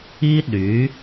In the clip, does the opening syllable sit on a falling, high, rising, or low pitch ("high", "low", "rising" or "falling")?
high